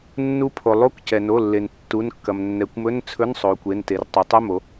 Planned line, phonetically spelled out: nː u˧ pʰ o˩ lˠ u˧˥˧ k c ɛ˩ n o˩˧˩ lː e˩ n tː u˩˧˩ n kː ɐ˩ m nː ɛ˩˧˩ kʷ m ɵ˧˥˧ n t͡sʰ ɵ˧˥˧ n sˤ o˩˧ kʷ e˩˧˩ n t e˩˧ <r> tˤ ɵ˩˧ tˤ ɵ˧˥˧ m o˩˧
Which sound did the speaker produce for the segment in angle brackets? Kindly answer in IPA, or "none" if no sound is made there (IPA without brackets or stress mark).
r